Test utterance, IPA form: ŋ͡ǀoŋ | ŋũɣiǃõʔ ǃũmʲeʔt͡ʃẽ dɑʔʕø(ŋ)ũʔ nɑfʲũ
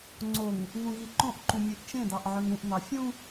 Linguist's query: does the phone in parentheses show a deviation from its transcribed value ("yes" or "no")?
no